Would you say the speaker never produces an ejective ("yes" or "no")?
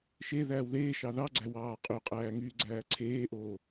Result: no